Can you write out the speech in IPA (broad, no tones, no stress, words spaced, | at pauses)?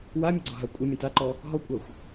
wamʲəɡ͡ǀɒɦa kʷʼəmʲə̃ taǃɔ | ɦɔkʷʼaxʷ